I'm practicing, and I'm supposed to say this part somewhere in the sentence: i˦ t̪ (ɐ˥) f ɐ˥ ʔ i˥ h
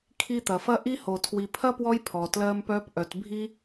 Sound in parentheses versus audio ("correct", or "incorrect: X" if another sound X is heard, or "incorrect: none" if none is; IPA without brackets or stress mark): incorrect: ɐ˩